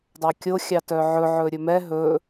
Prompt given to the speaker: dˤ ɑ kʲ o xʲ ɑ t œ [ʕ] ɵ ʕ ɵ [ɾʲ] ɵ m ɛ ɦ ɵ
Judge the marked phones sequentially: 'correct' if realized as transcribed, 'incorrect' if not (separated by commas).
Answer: correct, correct